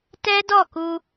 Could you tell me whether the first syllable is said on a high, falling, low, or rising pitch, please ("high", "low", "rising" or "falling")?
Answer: high